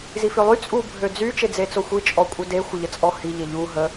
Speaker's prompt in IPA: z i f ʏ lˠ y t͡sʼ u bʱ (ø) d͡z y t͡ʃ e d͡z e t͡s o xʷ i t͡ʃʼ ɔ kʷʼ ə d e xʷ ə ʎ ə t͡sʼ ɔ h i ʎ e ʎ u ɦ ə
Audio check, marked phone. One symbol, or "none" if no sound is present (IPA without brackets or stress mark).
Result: ø